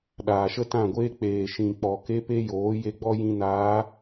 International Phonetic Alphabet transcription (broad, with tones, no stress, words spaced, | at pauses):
ɗaː˨ʃə˦tã˦˨ɡʷeː˦ k͡peː˨ʃĩ˨k͡pɔ˨ke˧ pe˦joː˨˦ je˧ɡ͡bɔ˦ jĩ˧naː˨˦